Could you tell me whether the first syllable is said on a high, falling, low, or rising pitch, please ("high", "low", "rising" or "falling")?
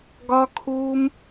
high